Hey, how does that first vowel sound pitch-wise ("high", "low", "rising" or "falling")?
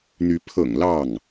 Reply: rising